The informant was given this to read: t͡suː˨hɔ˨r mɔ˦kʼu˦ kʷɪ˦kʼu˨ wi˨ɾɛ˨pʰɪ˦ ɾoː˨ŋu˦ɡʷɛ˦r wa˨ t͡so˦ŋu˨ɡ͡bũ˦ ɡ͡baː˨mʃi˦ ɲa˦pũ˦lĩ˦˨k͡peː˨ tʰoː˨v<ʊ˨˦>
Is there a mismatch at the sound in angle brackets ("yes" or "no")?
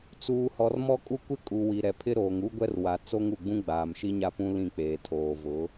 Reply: no